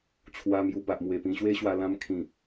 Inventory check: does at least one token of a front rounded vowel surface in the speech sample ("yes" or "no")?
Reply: no